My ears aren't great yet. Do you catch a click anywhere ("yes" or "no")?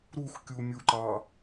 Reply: yes